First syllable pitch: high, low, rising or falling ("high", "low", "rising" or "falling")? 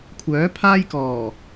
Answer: rising